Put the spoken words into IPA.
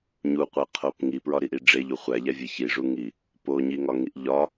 ɲ u qʷ æ qʰ o p ŋ i p ɹ ɒ ɾ i ʔ i ɖ͡ʐ e ʎ u χʷ æ ʎ æ vʲ e ç i ʐ u ŋ i | p o ɲ i ŋ ɒ ŋ i ʔ ʎ ɒ

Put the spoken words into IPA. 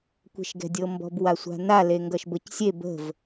kʷ e̤ ʃ ɡ ɛ̤ dʲ ɤ m b ɔ̤ b w a sʷ a̤ n a l e ŋ ɡ ʌ ʃ b ɤ c sʲ e b ə̤ v

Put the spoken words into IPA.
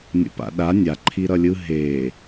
nʲ o̰ p a̰ ɗ a nʲ a ǃʰ i ɾ ʌ lʲ ɯ ɦ e

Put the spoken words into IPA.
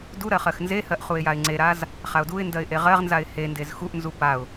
d u ɾ ɜ χ ɜ x n z e h ɜ ʔ χ u ɪ̯ j a ɪ̯ ŋ͡ǀ e ɾ a z | χ a ʊ̯ d u ɪ̯ n d ɜ ɪ̯ ʔ e ʁ ɜ ʁ n z a ɪ̯ h e n d e z x u ʔ n z u p a ʊ̯

